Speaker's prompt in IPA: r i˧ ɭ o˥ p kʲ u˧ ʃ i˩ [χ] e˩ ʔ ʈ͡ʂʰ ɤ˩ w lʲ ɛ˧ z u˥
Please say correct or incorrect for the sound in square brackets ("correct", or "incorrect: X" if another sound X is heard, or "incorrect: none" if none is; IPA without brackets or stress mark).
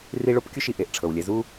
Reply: incorrect: ʔ